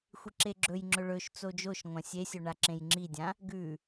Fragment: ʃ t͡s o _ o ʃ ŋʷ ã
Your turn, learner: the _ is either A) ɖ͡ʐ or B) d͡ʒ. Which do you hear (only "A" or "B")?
B